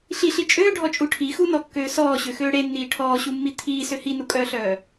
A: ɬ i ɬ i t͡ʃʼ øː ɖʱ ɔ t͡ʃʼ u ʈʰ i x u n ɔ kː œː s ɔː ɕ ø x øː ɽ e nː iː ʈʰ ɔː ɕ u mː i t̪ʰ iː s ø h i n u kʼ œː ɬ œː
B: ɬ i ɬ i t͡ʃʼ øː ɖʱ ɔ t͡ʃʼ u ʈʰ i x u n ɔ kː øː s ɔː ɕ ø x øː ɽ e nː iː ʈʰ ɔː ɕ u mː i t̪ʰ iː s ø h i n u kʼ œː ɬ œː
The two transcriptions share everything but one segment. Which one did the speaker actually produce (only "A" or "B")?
B